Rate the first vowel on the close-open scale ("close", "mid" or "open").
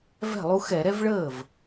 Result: mid